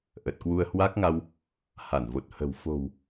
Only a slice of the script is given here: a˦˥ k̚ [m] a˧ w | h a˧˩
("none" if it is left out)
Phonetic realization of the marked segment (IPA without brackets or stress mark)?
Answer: ŋ